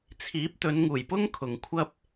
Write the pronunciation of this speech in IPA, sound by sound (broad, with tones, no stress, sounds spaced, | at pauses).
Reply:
t͡sʰ iː˨˥ p̚ t̪ ɵ˨˧ n ŋ uː˨˩ j p ʊ˥ ŋ kʰ ʊ˨ ŋ kʷʰ ɐ˥ p̚